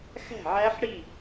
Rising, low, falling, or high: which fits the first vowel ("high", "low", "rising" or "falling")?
falling